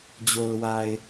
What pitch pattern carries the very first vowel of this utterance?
low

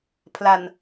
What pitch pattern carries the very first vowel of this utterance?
low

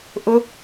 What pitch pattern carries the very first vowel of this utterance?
high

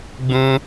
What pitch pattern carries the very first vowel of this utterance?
high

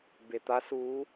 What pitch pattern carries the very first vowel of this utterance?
low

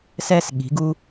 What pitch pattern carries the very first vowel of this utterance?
high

